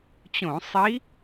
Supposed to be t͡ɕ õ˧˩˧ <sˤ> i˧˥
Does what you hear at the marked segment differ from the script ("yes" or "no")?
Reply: no